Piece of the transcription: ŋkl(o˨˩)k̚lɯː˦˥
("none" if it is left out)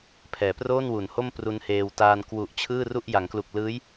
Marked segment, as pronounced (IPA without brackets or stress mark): u˨˩